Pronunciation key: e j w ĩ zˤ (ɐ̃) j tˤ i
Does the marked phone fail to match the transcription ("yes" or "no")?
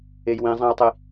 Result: yes